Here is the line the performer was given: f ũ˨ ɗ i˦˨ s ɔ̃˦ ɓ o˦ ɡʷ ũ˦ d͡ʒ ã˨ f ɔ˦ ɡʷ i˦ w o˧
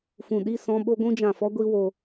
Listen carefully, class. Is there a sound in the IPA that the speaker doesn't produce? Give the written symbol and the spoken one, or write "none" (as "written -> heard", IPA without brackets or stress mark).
none